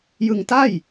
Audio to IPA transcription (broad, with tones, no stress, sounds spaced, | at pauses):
j ɯ˧ ŋ t a˥˩ j